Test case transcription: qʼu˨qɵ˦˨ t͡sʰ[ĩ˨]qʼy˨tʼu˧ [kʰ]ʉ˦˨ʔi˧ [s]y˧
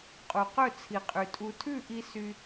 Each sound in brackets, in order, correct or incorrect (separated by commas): incorrect, incorrect, correct